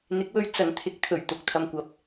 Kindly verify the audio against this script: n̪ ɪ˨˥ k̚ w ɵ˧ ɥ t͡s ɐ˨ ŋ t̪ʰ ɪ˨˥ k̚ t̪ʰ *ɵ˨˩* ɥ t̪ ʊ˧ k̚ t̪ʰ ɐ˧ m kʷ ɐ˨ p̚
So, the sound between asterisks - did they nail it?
yes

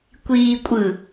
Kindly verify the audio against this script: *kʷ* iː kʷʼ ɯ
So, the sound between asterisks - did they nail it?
yes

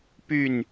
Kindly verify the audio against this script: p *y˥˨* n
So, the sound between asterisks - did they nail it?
yes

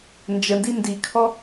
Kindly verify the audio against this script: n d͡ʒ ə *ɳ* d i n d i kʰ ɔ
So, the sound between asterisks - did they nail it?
no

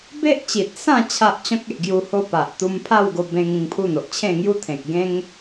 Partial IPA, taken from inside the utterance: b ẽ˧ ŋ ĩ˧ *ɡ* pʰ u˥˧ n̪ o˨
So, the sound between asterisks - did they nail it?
no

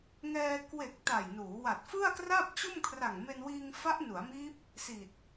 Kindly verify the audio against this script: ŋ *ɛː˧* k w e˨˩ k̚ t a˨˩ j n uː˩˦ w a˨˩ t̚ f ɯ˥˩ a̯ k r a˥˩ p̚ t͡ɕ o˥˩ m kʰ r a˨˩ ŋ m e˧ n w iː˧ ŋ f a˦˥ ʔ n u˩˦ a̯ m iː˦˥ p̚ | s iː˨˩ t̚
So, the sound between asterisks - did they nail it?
yes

